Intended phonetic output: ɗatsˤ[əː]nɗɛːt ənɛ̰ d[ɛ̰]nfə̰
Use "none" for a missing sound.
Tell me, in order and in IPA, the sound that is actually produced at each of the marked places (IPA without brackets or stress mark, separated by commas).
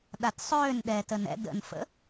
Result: øː, ə̰